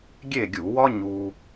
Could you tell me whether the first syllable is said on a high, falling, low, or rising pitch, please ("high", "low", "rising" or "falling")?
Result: falling